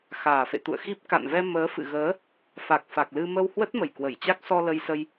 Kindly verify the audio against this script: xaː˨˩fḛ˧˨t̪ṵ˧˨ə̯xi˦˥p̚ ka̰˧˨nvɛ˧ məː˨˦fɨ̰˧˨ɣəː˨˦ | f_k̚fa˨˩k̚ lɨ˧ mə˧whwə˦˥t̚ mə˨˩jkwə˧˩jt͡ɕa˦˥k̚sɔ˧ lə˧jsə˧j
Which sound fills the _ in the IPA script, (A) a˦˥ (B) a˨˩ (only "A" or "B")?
B